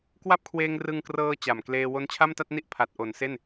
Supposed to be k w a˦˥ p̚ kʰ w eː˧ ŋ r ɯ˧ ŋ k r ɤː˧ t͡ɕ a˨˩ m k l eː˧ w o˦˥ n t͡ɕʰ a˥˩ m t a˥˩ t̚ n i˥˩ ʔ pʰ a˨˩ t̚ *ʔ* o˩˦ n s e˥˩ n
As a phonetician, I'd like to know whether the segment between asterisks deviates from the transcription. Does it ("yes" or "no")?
no